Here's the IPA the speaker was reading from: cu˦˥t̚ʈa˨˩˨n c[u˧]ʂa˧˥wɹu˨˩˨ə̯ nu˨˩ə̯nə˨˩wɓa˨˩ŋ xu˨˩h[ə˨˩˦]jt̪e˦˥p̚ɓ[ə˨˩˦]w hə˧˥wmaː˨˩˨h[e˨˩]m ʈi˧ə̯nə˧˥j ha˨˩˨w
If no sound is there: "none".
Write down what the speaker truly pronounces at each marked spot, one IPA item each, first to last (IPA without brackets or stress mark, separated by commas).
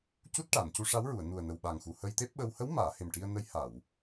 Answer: u˧, ə˧, ə˧, e˨˩